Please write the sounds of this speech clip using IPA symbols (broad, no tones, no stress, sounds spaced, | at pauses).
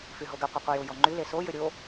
f y ɦ o ɡ ɘ qʷ ɘ qʷ ɘ j ʊ j ɔ ŋ͡ǃ y l e s o j ɘ ɾʲ o